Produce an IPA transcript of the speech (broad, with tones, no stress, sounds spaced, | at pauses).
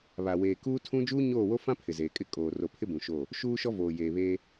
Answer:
β a˨ w eː˨ k uː˦ tʰ ũ˦ d͡ʒ uː˦ ɲ oː˦˨ w o˦ f ã˦ pʰ ɪ˨ z eː˨ kʼ ɪ˦ kʼ oː˨ r o˨ pʰ ɪ˦ b ũ˨ ʃ o˦˨ | ʃ uː˦ ʃ ɔ˦ v oː˨ j eː˨ β eː˦